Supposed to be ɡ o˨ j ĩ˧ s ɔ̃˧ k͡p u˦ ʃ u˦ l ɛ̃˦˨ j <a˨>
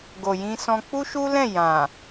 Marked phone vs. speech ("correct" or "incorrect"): incorrect